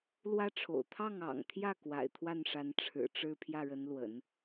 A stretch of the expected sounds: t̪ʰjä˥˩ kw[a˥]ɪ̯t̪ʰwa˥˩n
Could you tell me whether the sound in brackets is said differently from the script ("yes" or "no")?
yes